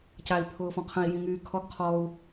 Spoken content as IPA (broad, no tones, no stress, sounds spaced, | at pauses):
c a i̯ pʰ ʊː f ɔ̃ qʰ ə̃ i̯ j ĩ ŋ yː kʰ ɔ ɡ qʰ ɔ u̯